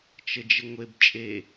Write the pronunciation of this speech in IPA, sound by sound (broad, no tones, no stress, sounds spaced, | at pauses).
t͡ʃ ə d͡ʒ ə ŋʷ e b t͡ʃʼ e